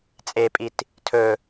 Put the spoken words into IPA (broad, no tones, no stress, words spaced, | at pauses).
t͡sʼepʼit | tʰɵ